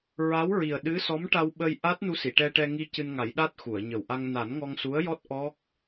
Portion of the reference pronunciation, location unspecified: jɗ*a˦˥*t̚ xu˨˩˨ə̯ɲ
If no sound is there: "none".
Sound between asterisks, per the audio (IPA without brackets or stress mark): a˦˥